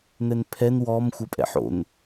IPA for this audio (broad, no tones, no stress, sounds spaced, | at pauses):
n̪ ɛ n pʰ ɛ n w ɔ m xʷ ɜ pʼ ɛ̰ ħ o̰ n